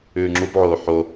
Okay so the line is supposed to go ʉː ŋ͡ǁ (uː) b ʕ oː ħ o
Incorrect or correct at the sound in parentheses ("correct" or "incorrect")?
incorrect